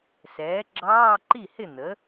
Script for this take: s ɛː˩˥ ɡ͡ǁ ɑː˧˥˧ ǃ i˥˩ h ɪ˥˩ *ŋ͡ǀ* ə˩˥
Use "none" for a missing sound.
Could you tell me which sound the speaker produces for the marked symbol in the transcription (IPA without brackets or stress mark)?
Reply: n̪